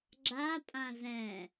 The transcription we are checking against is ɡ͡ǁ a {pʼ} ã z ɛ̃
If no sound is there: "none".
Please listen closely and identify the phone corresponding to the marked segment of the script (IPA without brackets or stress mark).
pʼ